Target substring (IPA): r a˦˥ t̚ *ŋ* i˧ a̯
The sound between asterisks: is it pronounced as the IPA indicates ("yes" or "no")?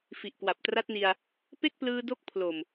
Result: no